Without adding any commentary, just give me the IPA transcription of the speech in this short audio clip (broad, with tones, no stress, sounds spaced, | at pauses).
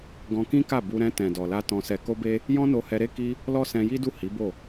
ɡ ɔ̃˧ k ĩ˦ k a˦˨ b u˧ ɾ ɛ̃˧ t ɛ̃˨ d ɔ˨ l a˧ t ɔ̃˧ s ɛ˧ k o˦ b e˦ | j ɔ̃˦ n o˧ h ɛ˧ ɾ e˦ k i˦ | l ɔ˦ s ɛ̃˧ j i˦ d u˦˨ h i˨˦ b o˦˨